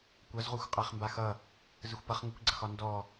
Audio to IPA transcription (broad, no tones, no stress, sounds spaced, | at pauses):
kʷ ʌ z ʁ u xʷ qʼ a χ m b a x ʌ | z ɯ xʷ p ʌ χ ŋ ɯ kʷ ɡ͡ǀ ʌ x ɒ n d ɔ